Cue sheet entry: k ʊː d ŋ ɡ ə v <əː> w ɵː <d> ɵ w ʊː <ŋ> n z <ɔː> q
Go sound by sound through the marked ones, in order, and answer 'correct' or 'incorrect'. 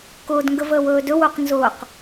correct, correct, incorrect, incorrect

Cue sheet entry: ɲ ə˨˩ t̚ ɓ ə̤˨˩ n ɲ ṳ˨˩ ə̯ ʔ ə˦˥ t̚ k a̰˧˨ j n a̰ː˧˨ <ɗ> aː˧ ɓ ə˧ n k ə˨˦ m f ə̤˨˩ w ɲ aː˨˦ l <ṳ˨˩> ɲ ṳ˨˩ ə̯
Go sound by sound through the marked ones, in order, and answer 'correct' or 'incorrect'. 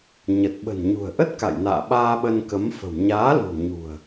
incorrect, correct

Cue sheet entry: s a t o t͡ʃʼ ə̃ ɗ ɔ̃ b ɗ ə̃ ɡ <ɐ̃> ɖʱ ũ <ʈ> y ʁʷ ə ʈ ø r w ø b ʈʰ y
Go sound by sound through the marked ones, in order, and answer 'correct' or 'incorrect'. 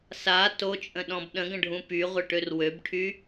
incorrect, incorrect

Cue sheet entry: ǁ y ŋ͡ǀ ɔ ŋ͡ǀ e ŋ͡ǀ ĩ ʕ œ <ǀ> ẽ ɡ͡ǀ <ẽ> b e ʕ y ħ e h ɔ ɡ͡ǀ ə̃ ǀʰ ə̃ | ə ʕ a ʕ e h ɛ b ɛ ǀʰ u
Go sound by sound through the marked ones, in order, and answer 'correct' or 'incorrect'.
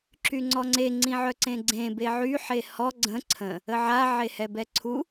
correct, correct

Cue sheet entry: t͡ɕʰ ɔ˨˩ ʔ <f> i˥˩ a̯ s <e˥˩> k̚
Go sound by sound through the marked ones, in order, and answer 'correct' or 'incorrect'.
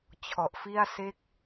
correct, correct

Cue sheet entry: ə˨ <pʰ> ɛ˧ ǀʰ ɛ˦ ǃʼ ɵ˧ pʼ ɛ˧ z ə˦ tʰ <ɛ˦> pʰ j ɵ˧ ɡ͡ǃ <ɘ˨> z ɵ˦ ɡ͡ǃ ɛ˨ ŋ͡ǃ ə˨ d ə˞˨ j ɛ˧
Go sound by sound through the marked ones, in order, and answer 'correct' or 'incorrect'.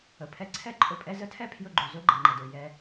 correct, correct, incorrect

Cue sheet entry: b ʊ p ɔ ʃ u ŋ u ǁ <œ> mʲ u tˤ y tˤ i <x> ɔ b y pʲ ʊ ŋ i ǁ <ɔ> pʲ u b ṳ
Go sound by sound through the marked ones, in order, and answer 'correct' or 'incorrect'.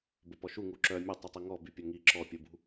correct, incorrect, correct

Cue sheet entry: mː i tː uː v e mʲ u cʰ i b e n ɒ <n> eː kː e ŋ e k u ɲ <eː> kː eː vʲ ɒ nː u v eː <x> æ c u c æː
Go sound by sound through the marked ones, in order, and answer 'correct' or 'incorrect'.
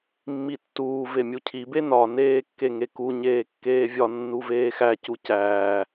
correct, correct, correct

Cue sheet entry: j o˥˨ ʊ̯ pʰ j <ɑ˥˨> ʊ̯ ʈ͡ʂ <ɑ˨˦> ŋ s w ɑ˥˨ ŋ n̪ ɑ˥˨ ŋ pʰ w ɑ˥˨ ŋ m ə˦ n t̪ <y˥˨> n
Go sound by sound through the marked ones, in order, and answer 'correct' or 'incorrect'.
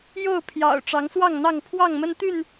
incorrect, correct, correct

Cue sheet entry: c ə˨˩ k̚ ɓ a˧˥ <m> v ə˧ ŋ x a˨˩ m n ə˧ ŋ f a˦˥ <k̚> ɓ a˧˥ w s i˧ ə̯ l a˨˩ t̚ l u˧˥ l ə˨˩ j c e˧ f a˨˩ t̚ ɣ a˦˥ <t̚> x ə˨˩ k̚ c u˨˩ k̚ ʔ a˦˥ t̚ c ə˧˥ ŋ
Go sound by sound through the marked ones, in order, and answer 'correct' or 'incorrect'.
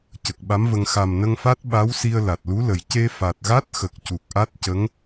correct, incorrect, correct

